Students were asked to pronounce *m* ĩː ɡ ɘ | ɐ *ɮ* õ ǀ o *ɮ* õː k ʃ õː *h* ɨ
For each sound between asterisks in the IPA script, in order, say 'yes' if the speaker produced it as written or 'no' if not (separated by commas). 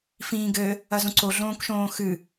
no, no, yes, no